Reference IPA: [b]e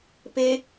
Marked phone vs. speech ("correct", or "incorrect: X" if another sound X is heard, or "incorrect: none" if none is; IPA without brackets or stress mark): incorrect: p